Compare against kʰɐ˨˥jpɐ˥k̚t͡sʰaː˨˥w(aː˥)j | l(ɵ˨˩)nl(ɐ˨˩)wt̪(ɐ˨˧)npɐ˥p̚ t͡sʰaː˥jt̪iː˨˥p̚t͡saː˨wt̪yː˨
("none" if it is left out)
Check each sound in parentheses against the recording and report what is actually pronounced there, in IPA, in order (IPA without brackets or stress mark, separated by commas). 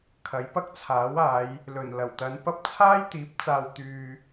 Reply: aː˨˧, ɵ˨˩, ɐ˨˩, ɐ˨˧